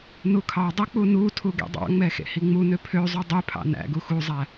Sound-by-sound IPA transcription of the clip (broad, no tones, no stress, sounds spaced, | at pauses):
n u kʰ ɑ dˤ ø k͡p u n u tʰ u ɡ ḛ dˤ ɑ̰ ŋ͡m ɛ x ḛ h i ŋ͡m u n ø pʰ ø zˤ u dˤ y pʰ ɑ̰ n æ̰ ɡ u x u zˤ æ